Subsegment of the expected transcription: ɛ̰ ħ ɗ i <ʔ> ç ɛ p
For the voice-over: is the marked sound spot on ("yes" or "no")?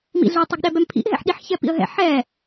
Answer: no